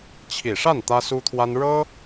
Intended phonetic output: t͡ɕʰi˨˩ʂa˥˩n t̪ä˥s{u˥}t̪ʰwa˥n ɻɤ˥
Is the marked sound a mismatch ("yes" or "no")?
no